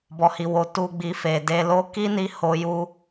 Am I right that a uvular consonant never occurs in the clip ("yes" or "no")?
yes